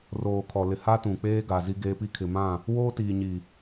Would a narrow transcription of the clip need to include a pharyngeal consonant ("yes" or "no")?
no